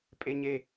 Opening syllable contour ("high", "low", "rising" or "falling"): high